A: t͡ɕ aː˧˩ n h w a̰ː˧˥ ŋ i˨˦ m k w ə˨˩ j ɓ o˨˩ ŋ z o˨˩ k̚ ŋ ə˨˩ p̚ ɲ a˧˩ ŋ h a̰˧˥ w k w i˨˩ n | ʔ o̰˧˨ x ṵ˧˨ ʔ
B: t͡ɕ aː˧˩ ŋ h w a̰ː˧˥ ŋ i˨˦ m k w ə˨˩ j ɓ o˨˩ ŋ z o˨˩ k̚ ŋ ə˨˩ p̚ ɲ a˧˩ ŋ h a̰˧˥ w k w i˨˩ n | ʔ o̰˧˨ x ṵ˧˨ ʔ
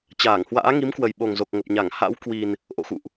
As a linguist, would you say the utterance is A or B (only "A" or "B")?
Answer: B